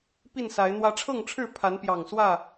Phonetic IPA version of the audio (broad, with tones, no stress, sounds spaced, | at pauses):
p i˥˨ n s a˨˦ ɪ̯ n̪ w ä˦ ʈ͡ʂʰ ɤ˥˨ ŋ ʈ͡ʂʰ ɻ̩˥˨ pʰ a˨˦ n p j ɑ˨˩ ŋ s w ä˥˨